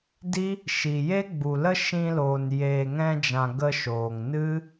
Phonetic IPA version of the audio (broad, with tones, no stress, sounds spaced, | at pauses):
d i˦ | ʃ i˨ j e˦ ɡ͡b u˨ l ə˦ ʃ ĩ˧ l oː˨ n j eː˨ ŋ ɛ̃˧ d͡ʒ ã˨ ɡ ə˧ ʃ oː˨ ŋ n ɨ˦